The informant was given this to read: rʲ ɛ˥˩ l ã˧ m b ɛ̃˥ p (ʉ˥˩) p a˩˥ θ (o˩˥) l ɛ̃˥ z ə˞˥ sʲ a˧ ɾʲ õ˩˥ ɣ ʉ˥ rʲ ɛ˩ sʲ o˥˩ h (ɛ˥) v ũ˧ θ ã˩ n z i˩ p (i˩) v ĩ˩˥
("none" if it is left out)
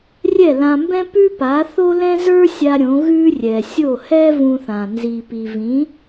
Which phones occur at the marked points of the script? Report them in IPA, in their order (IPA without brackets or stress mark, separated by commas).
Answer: ʉ˥, o˥, ɛ˥, i˩